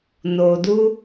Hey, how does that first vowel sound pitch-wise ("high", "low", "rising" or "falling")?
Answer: low